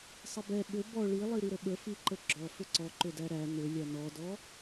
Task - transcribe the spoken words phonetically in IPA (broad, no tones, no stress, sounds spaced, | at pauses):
sˤ ə b ɛ ɓ ʏ b ɔ ɭ i lˠ i ɾ i ɾ ə ɓ ə f i ǃ ə ɡ͡ǁ ɔ f ʏ ǀ ɔ ǃ ʏ d æ ɾ æ n ʏ lʲ æ n ɔ d ɔ